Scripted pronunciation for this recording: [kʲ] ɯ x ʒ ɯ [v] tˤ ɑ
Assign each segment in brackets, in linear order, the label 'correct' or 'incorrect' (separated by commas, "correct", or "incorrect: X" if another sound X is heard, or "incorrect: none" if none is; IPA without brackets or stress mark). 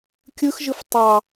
correct, incorrect: f